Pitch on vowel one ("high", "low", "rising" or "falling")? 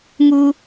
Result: high